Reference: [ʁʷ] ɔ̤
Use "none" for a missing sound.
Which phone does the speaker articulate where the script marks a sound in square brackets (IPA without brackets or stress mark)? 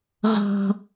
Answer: ʁ